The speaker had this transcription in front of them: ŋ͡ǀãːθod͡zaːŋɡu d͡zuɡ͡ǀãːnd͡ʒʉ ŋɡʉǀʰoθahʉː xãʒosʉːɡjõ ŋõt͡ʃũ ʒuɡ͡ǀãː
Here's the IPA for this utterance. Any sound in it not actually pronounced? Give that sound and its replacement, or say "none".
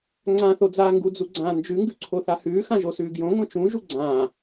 none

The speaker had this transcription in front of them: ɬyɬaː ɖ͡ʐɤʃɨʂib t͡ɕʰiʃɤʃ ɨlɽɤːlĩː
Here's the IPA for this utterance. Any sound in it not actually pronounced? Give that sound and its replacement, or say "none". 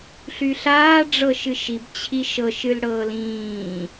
ʂ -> ʃ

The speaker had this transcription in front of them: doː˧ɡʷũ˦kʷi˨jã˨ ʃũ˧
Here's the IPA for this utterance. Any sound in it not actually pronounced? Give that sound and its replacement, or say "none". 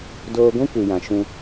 none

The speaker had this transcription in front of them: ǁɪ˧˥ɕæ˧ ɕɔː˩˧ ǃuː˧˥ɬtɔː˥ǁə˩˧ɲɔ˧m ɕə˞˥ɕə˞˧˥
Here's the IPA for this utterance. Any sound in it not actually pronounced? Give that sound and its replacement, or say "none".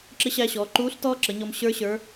none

